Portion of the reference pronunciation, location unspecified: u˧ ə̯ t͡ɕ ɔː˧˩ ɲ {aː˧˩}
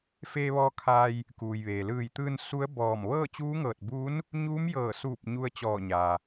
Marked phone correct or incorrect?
incorrect